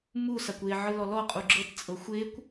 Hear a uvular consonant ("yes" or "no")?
yes